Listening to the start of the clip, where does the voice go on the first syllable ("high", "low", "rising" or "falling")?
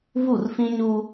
falling